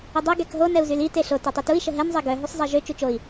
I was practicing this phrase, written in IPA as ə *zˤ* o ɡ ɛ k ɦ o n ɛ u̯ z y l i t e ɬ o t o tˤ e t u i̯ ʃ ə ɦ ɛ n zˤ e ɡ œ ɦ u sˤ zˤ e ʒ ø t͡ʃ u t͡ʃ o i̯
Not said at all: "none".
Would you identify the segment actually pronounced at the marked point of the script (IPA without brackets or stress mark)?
dˤ